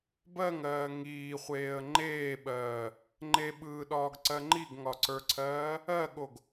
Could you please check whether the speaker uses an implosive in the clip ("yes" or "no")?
yes